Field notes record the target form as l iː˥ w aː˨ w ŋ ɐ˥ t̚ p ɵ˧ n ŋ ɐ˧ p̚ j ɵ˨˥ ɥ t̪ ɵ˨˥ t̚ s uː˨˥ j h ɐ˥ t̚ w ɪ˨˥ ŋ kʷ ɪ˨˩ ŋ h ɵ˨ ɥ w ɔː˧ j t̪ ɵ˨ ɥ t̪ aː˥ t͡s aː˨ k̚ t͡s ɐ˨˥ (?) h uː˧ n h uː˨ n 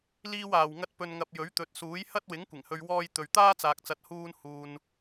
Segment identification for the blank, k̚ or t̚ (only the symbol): t̚